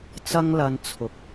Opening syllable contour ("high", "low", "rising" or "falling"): high